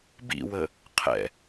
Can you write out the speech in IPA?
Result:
bḭwə | qʰɛ̰

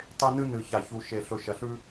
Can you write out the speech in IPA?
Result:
tˤe˧nɨ˧nɨ˨ ça˨çu˨ʃe˨ ɬɵ˨ʃɐ˨ɬʉ˧

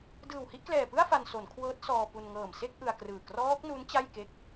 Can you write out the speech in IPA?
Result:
dɯː˨˩whi˥˩ʔklɛː˨˩pɯ˥˩a̯ fa˧nso˩˦n kʰwɤː˦˥t̚sɔː˧pu˧n ŋɤː˨˩mse˥˩k̚ ʔɯ˧a̯krɯː˨˩ krɔː˦˥k̚nu˦˥n t͡ɕa˥˩jke˦˥k̚

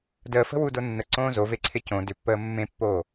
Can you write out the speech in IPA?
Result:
dəːfə̤wudo nːəǀõː zoveǀʰɪ cõ dʏpːəː mːẽpːoː

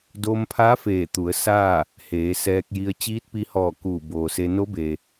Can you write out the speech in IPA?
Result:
doː˧mpʰaː˧˥ feː˧˩ t̪u˩˧ə̯saː˥˨ | heː˩˧sɛː˧k̚ji˧ə̯ t͡ɕiː˧˥t̚pi˧hɔː˧˩ kuː˧˩boː˩se˧ no˧˥be˩

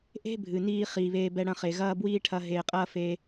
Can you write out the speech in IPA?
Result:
ʔe̤˦bʱɨ˨niː˧ χiː˧βeː˦bɛ˦ ɽɐ̃˧χe˨ɣɐː˦ bwiː˦ʈʰɐ˧ ɦeː˨qʼɐː˦ fe˧

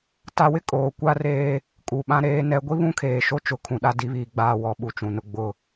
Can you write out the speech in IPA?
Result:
ta˨wɪ˦ kʼoː˨kʷa˦reː˦ | kʼu˨ɓã˦ ɾeː˨˦nɛ˨˦ ɡʷi˦βũ˦kʰeː˨ ʃo˦t͡ʃʊ˨ kʰũ˨ɗa˦ di˨˦βiː˨ ɡ͡baː˨ wɔ˨˦ɓu˨t͡ʃũ˨nʊ˦ ɡ͡bʊ˦˨

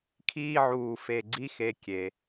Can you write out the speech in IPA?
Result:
kʰiː˥˧ʕuː˧˩ fe˧˩ɡ͡ǀi˥˧xe˧˩ kʲe˩˧

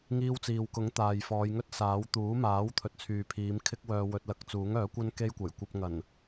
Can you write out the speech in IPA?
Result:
ŋiː˥wt͡siː˧w kʊ˨˥ŋ t̪aː˨jfɔː˨˧jŋɵ˥t̚ saː˨˥w t̪uː˨˥maː˨˥w t̪ʰɵ˨t̚t͡sʰyː˨pʰiː˨˧m kʰɪ˥k̚wœː˧wɵ˧t̚ lɐ˨˥k̚t͡suː˨˥ŋœː˨˥kʷɐ˥n ke˥jkʷɐ˨˩j kʷɐ˧p̚ŋɐ˨˩n

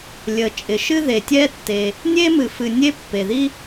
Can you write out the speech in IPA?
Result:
lʲə˩t͡ʃʼɪ˩ ʃɨ˥ðe˩tʲɛ˥ tːe˩ | nʲe˥mɨ˩fɨ˩ nʲe˥ pːe˩ði˥

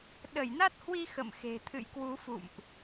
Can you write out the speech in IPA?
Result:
ɗə˧˩jna˦˥t̚hwi˧ xə̰˧˨mxe̤˨˩ t̪ʰɨ̰˧˨jkwu˨˦fṵ˧˨mʔ

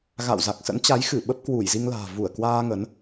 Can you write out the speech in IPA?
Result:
ɣa̰˧˨wza˨˩k̚sə̰˧˥nt͡ɕa˨˦j xɨ˧˩ ɓə˦˥p̚kwu˧˩jzi˧ŋla̤ː˨˩ vu˧˩ə̯kwaː˧ ŋə˨˦n

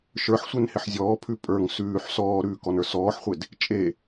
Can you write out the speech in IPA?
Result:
ʃə˞ħsʷenhɪħ zʲɔːpʰʉ pʼə˞ŋ sʉːħ sɔːɾʉːkɔnə˞ sɔːħχʷed | t͡ʃʼe

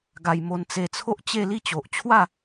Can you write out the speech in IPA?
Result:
ɡa˧j mo˧nt͡se˧t͡sʰo˦ʔt͡ɕe˥˧ li˥˧t͡ɕo˨ʔ t͡ɕʰwa˥˧

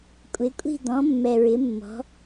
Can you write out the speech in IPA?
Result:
kʷʼɪ˧˥kʷʼi̤˥˧ d̪ɔ̃˧˥mːɛ˧ɹɪ˧˥ mːɔ̤˧˥

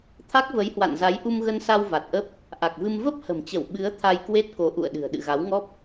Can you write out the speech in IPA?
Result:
t̪ʰa˦˥k̚və˨˦jhwa̰˧˨nza˨˦j ʔu˧mɣə˧nsa˧w va˨˩t̚ʔə˦˥p̚ | ʔa˨˩k̚vɨ˧m və˦˥p̚ hə̤˨˩mt͡ɕə˧˩w ɓɨ˨˦ə̯ t̪ʰa˧jkwe˦˥t̚ko˨˦ ʔṵ˧˨ə̯ɗɨ̤˨˩ə̯ ɗɨ̰˧˨ɣa˨˦wŋɔ˦˥p̚

